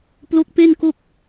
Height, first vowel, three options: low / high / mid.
mid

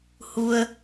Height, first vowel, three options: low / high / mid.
high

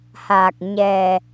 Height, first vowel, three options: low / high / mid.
low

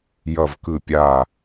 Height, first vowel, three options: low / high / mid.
mid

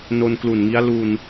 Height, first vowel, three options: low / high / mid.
mid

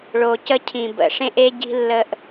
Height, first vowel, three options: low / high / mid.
mid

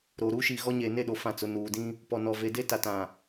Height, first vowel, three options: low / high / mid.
mid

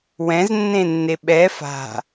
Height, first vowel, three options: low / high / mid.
mid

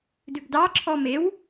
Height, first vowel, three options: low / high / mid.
high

